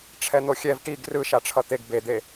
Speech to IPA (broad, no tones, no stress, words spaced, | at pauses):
ʈ͡ʂʰɛn̪oxʲɛv ʈiɡ rɯ ʃaʈ͡ʂʰʌt̪eɡ bed̪e